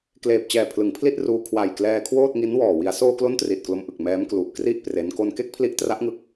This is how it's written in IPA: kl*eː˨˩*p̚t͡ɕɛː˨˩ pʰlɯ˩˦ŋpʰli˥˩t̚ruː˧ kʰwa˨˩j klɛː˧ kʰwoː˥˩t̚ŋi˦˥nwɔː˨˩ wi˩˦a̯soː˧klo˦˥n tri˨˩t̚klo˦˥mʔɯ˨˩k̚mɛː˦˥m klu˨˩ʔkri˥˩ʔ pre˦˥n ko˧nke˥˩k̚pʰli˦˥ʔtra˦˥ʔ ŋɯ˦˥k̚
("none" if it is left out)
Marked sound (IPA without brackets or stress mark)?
eː˨˩